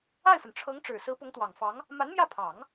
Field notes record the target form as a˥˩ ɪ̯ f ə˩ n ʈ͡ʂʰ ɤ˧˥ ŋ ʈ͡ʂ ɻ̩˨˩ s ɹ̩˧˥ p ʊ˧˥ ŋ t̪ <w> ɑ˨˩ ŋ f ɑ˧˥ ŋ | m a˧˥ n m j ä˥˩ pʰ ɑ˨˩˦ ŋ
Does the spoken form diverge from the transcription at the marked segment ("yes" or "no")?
no